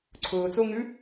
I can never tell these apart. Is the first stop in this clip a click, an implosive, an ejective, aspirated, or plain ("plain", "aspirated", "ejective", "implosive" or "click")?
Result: click